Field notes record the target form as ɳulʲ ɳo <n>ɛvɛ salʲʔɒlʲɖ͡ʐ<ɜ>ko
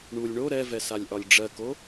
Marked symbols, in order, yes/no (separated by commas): no, yes